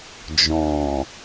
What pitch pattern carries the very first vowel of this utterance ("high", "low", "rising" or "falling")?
low